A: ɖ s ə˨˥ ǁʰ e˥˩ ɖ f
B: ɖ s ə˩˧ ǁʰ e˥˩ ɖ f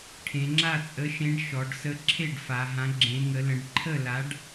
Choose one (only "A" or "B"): A